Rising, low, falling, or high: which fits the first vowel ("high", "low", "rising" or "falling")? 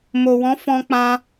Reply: low